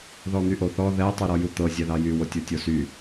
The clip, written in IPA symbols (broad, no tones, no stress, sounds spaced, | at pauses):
ð ɔ n̪ y ʔ o θ ɔ ð ɛ tˤ y ɾ ɔ j u t̪ ɤ zʲ ɛ ð ɑ j y w o tʲ o tʲ o s y